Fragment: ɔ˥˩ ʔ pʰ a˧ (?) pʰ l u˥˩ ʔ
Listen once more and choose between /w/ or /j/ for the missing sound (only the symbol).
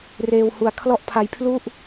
j